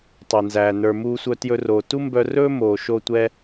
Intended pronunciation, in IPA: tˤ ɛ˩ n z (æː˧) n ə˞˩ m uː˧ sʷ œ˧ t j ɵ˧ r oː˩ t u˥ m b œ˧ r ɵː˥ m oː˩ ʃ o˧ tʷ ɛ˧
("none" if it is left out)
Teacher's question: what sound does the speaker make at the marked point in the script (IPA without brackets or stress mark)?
æː˩